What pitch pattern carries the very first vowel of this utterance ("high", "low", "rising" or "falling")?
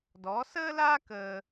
rising